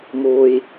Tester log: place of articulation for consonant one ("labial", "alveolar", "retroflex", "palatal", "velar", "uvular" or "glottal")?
labial